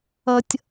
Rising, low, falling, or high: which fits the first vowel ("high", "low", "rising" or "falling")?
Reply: high